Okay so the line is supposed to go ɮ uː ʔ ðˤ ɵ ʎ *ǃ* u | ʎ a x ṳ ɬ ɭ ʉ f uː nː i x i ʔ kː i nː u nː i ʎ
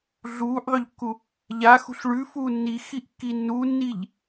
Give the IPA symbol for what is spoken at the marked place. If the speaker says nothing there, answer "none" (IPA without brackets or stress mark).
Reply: kː